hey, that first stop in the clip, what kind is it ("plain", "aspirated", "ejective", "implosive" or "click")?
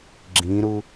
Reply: click